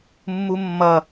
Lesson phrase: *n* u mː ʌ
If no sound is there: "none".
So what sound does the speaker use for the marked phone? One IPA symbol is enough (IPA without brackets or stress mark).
mː